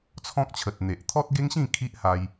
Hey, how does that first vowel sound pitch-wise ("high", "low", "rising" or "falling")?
high